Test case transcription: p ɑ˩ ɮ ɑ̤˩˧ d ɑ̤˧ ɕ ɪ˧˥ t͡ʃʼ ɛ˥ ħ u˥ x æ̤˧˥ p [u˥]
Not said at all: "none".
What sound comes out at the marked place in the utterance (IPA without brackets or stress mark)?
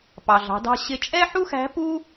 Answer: u˥